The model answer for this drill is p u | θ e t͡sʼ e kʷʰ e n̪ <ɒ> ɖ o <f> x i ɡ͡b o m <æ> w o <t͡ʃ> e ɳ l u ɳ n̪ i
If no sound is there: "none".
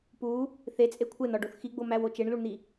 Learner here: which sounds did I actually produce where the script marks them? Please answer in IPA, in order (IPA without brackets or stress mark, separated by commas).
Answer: ɒ, θ, æ, t͡ʃ